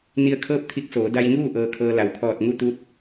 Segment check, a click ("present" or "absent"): absent